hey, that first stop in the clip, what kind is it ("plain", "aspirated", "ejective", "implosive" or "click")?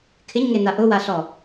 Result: aspirated